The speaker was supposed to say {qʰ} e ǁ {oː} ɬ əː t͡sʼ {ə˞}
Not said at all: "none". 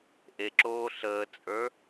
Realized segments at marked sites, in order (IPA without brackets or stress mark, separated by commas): ʔ, oː, ə˞